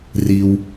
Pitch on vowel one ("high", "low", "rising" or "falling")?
low